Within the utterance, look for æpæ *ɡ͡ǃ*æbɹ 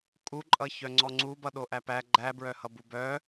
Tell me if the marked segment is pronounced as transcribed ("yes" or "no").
yes